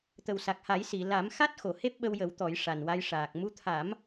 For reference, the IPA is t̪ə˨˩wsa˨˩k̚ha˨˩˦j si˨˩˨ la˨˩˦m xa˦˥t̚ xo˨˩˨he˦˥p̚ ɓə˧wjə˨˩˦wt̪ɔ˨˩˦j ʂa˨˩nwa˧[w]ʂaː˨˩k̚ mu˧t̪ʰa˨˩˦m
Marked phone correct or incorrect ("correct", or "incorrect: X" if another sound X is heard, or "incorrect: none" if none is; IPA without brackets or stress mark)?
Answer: incorrect: j